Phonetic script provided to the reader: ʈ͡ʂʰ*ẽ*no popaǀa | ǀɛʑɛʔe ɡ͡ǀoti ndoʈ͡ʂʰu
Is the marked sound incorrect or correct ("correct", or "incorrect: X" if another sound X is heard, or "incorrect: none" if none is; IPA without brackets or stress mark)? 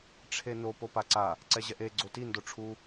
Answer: incorrect: e